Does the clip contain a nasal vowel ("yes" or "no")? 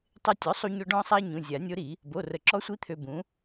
yes